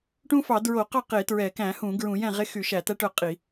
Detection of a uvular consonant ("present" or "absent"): present